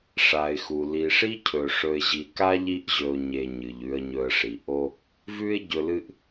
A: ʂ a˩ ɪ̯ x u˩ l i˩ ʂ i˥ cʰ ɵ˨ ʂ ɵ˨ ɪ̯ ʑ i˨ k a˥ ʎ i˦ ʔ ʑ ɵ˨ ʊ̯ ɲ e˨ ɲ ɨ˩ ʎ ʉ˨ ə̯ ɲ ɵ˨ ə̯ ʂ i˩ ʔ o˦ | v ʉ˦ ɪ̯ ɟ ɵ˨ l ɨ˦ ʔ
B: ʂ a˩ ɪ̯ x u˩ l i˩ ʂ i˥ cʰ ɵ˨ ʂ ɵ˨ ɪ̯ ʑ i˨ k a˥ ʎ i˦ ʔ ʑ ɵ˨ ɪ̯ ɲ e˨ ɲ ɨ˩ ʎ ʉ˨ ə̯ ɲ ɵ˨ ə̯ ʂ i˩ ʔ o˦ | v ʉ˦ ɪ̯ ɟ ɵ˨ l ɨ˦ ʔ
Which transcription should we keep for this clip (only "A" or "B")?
A